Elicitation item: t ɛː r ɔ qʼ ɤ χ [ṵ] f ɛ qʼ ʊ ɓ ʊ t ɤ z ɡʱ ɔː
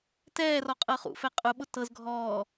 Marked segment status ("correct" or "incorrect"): correct